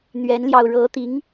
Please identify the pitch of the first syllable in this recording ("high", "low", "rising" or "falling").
rising